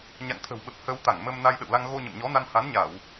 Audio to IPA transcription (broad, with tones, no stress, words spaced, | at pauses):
ɲa̰˧˨ŋt̪ʰə̤˨˩wɓə˨˩p̚ hə˧w t̪a˧˩ŋmə˧m na˧jɗə̰˧˨wla˧ŋ ɣo˧ɲə̰˧˨mɲɔ˨˦na˧n ha˨˦nɲa˧˩˨w